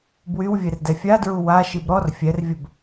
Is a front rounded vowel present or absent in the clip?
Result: present